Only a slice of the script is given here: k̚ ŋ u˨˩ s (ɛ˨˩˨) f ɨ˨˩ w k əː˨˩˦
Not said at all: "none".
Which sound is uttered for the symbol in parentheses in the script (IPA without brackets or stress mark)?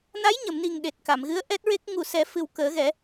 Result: ɛ˨˩˦